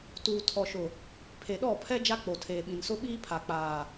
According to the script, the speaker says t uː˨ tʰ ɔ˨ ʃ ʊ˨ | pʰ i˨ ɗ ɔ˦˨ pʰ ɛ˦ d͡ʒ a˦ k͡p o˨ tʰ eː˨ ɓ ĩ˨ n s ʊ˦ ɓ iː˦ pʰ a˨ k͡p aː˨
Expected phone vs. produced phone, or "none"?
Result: i˨ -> e˨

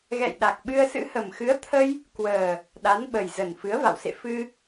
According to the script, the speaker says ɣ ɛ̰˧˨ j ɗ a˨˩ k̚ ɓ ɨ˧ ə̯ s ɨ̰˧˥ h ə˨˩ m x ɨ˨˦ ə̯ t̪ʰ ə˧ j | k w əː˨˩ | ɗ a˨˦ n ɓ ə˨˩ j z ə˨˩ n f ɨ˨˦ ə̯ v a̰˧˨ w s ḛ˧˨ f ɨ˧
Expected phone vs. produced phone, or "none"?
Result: none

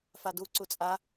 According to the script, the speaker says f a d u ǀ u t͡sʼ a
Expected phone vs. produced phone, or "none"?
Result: none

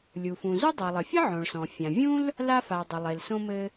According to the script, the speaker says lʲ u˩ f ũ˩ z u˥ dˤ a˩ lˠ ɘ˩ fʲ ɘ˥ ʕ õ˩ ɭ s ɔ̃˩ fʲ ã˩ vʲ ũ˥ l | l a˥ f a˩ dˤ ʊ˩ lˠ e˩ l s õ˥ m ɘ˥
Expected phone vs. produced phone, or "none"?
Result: none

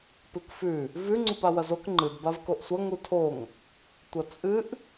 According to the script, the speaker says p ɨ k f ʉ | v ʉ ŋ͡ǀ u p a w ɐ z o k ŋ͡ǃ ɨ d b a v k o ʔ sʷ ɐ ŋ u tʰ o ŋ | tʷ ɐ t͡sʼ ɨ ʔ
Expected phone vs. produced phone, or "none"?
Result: none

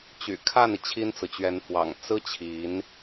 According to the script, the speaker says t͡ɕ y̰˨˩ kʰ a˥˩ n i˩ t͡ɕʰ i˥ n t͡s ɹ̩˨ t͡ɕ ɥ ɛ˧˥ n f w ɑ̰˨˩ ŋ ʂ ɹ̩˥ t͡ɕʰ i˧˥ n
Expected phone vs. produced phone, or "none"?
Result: ʂ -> t͡s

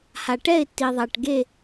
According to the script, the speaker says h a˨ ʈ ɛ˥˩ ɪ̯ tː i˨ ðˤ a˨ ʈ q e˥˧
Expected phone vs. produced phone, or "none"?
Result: q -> ɡ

